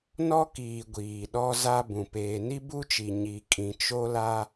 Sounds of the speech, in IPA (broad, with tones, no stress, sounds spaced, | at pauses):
n ɔ˦ k iː˨ ɡʷ iː˨ ɗ ɔ˦ z a˦ b ũ˨ p eː˨ n i˦ b u˦ t͡ʃ i˨ ɲ i˨ kʼ ĩ˨ t͡ʃ o˦ l a˦